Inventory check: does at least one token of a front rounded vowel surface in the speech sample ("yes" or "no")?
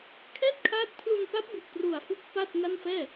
no